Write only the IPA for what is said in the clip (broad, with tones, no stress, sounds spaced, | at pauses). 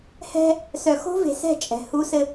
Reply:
h ɛ̤˦ | s œ˨ x o̤˦ v e̤˨ s ɛ̤˦˨ t͡ʃʼ ɛ̤˨ h u˦ s ɘ˦